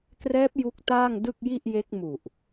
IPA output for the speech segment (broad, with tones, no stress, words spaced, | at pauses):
krɛː˦˥p̚ ju˦˥k̚taː˥˩ŋdɯ˥˩k̚ ji˥˩ʔje˦˥k̚mu˨˩ʔ